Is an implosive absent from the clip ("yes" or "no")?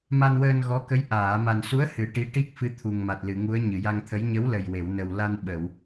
no